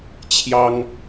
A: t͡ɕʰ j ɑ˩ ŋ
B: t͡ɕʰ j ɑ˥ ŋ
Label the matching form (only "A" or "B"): B